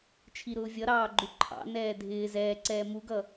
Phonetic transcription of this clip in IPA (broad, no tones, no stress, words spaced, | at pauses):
t͡ʃʰiɾʊːvʲʌɾɑː ɡ͡ǃuǃʰɑ̰nɛː dʱɪː zɛːǀɛː muɡʌ